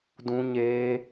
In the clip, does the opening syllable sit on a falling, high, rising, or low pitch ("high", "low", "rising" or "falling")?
high